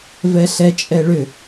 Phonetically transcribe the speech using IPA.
v ɛ ɬ ɛ t͡ʃʼ ɛ ɭ ʏ

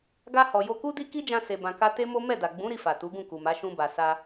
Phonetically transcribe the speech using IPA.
ɡ a˧ h ɔ˨ j o˧ k u˦ d i˦ k i˦ d͡ʒ ã˧ s e˨ b ã˨ k a˧ t e˦ m o˦ m ɛ˦˨ d a˨ ɡ͡b ũ˨˦ ɾ i˧ f a˨ t u˨˦ ɡ ũ˦˨ k u˨ m a˨˦ ʃ ũ˧ b a˨ s a˧

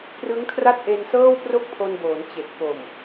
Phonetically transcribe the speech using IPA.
p r ɯ˦˥ ŋ kʰ r a˥˩ t̚ ʔ e˧ n s ɤː˥˩ w p r o˥˩ k̚ pʰ o˧ n b oː˩˦ n t͡ɕ e˨˩ k̚ p o˨˩ m

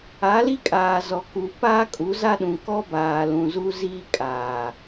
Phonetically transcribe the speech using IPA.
a˨˦ l i˦ kʼ aː˨ z ɔ˨ k u˨ p aː˦ kʼ u˨˦ z a˦ ɗ ũ˨ k ɔ˦ b aː˨ l ũ˨ z u˦ z iː˦ kʼ aː˨

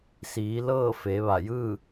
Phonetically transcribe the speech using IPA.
s iː˩˧ l ɤː˥˨ f e˩˧ ʋ a˧˩ j ɯː˥˨

